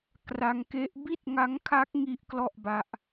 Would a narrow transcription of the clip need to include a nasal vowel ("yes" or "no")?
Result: no